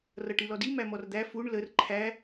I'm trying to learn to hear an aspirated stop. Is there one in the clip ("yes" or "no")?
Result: yes